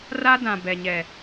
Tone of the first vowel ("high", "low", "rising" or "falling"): high